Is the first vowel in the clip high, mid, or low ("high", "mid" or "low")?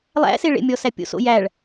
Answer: low